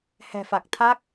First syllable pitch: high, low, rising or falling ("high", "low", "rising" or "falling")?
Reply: low